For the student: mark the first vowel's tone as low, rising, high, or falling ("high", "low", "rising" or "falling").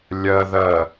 low